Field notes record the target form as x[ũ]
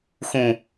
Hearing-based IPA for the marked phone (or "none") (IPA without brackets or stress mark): ũ